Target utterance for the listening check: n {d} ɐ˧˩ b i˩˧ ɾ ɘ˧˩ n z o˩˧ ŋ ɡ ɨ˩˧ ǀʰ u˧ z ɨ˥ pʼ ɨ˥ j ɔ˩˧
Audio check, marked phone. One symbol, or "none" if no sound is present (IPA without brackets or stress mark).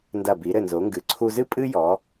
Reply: d